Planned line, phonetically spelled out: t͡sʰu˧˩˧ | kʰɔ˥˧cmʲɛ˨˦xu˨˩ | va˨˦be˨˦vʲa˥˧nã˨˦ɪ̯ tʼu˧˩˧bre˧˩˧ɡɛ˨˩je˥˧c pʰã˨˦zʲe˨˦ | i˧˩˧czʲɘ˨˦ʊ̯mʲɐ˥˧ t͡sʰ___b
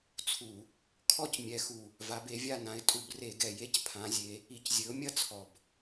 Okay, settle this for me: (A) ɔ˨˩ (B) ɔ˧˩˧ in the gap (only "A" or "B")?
A